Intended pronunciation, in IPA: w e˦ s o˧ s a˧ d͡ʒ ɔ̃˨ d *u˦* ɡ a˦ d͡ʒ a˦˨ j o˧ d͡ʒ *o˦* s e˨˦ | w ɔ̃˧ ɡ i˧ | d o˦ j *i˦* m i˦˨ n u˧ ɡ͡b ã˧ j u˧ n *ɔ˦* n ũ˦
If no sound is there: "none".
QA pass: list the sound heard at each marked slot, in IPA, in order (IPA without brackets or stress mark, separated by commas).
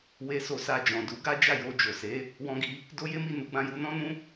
u˨˦, o˨, e˦, ɔ̃˦